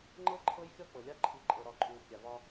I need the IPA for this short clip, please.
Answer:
ŋ͡ǃ ɤ˦ ǃʰ ɤ˦ j xʲ ɔ˦ k͡p ɤ˨ lʲ a˦ ǃʰ i˨ ǃʼ ɤ˨ ɾ ɒ˨ ǃʼ uː˨ kʲ a˨ v ɒ˦

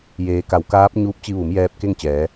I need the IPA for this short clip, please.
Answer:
j eː˩˧ k a˩˧ w k aː˧˥ p̚ ɲ uː˧˥ p̚ t͡ɕ i˧ ʋ u˩˧ m j ɛː˧ p̚ k e˥˨ ŋ t͡ɕ ɛː˩˧

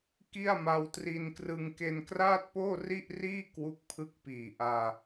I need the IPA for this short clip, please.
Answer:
k i˥˩ a̯ m a˧ w t r i˧ n k r ɯ˧ ŋ k e˧ n k r aː˥˩ t̚ p oː˥˩ r i˥˩ ʔ r iː˥˩ k w u˦˥ k̚ pʰ ɯ˦˥ k̚ p iː˨˩ ʔ aː˧

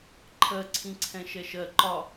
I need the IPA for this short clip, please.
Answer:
ǃʰ ɜ ǀʰ ĩ ǀʰ ɛ̃ ʃ ɛ ʃ ɜ ǃ ɒ

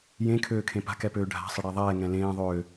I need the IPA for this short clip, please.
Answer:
j ẽ kʰ øː kʰ ẽ p a̤ k ɛ p øː ɖʱ a̤ sˤ ə ɽ ɛ ðˤ ɛː ŋ ɛ̃ l ẽː ðˤ øː

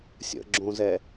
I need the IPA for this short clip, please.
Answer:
sʲ ə̰ ɡ͡ǁ õ z ɛ

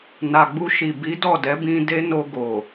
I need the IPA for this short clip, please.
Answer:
n a˨ ɡ͡b u˧ ʃ i˨ b i˨˦ d ɔ˦˨ d ɛ˨˦ b ĩ˧ d e˦ n o˧ ɡ o˨

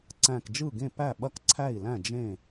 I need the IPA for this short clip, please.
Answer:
ǀ æ̃˧˩ k d͡ʒ ɯ˥˩ ɡ ẽ˥˩ p æ˥˩ ɓ ɐ˥˩ k ǀʰ æ˥˩ i̯ l æ̃˥˩ d͡ʒ ẽ˥˩

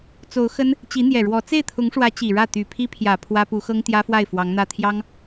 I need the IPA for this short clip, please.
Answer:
t͡s o˧˥ ʊ̯ x ə˥ n | t͡ɕ i˧˥ n̪ j ɛ˨˩ ɻ w ɔ˧˥ t͡s e˥˩ ɪ̯ t̪ʰ ʊ˧˥ ŋ ʂ w ä˧˥ t͡ɕ i˨˩ ɻ ä˥˩ t̪ y˨˩ pʰ i˥ pʰ j ä˨˩ pʰ w ä˥ p u˧˥ x ɤ˥ ŋ t̪ j ä˥ f w a˥˩ ɪ̯ f w ɑ˧˥ ŋ n̪ ä˥˩ t̪ʰ j ɑ˥ ŋ

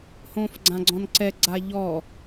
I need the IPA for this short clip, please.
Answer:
h õː f ɡ͡ǀ ã ɡ͡ǀ ɔ̃ n ǀ ɛ ɡ͡ǀ a ʎ ɔ

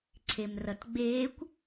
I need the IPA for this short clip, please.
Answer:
ǀʰ e m r ʌ t ɡ͡b eː kʷ

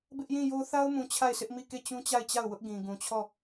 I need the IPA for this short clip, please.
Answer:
b ɪ˦ ʔ j ĩ˦˨ j o˦ θ a˦ ʊ̯ m ũ˨ t͡ɕʰ a˦˨ ɪ̯ s ɪ˦ ʔ m i˦˨ k e˦˨ t͡ɕ ũ˦ t͡ɕ a˦˨ ɪ̯ t͡ɕ a˦˨ ʊ̯ w ʊ˦ ʔ ɡ ĩ˨ ɡ ũ˨ t͡ɕʰ ɔ˦˨

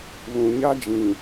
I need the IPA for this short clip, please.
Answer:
β ũ˨ ɲ a˦ d͡ʒ ĩ˨

